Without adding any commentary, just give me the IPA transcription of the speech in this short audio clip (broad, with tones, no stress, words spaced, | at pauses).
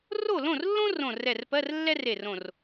ro˥˨lõ˥˨rlːõ˥ rõ˧˩rɛ˧˩rpɜ˧˥˧r lːɛ˥re˧˩rõ˧˩r